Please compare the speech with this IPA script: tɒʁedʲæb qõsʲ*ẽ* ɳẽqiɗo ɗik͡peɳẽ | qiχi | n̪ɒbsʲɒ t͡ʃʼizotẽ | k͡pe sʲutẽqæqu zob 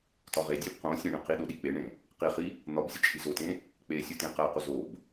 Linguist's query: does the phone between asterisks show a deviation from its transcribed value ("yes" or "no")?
no